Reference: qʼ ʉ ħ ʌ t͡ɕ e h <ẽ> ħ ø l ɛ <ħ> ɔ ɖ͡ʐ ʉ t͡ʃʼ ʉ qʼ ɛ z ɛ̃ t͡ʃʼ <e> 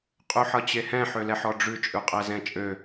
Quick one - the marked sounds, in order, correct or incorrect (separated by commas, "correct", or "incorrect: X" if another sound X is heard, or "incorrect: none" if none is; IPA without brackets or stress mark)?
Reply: incorrect: ɛ̃, correct, incorrect: ø